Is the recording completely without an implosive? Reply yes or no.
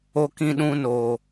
no